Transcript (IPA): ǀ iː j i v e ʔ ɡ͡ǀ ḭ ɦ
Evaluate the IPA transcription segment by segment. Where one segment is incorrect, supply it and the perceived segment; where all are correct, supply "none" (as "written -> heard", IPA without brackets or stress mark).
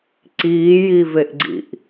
ɦ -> ʔ